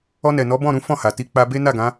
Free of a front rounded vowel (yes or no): yes